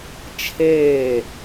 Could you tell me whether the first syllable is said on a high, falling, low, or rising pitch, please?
falling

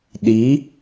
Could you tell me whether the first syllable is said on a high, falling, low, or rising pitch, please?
rising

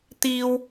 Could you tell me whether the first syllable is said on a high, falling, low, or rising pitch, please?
high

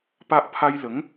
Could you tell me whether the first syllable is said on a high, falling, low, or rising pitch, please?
high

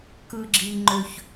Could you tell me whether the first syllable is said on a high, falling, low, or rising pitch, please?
low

